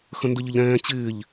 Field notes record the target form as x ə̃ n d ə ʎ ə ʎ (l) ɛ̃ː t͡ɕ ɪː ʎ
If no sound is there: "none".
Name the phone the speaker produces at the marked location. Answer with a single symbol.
ɾ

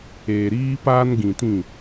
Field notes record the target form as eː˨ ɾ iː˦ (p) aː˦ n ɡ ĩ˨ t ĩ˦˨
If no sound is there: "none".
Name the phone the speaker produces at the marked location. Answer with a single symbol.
p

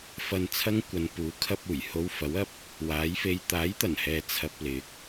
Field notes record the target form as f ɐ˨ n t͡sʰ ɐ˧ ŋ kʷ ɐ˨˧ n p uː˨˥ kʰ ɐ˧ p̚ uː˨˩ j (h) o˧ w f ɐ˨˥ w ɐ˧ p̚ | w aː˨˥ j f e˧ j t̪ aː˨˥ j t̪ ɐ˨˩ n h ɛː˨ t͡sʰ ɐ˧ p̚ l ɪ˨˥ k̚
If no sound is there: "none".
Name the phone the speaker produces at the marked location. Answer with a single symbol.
h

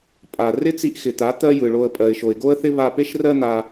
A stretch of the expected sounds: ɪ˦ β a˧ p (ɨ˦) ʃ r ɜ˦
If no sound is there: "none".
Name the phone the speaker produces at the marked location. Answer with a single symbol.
e˦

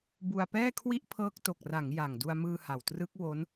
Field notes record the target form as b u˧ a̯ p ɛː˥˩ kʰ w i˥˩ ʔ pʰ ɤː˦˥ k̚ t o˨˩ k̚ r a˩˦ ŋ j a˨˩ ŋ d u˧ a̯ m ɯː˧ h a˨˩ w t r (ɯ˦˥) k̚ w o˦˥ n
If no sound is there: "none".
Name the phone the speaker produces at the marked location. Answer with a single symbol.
ɯ˦˥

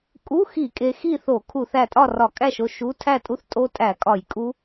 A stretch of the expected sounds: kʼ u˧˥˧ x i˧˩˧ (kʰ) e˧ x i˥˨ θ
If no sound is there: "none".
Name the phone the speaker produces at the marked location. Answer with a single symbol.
kʼ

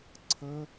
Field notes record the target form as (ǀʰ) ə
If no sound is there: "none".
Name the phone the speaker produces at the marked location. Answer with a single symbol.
ǀʰ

